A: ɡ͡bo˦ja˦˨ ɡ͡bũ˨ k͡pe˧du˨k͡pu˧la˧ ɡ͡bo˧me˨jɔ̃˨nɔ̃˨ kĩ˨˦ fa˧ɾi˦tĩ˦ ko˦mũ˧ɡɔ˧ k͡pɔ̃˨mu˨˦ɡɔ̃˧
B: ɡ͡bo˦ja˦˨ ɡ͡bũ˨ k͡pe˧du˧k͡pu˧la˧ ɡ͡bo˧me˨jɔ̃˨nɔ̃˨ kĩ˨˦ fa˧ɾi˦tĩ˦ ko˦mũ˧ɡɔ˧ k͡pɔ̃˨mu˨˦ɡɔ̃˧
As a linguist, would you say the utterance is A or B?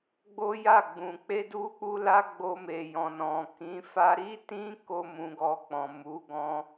B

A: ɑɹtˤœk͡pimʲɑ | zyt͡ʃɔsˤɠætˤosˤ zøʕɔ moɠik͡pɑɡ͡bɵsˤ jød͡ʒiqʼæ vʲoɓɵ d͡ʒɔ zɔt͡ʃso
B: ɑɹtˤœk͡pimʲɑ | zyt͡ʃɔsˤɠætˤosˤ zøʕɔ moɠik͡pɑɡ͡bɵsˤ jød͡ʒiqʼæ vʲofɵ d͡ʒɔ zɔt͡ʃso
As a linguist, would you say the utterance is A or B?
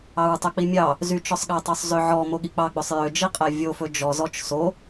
B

